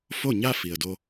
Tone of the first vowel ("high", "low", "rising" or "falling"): falling